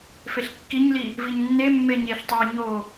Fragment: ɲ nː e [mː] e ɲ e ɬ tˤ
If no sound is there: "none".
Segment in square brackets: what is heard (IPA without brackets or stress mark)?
mː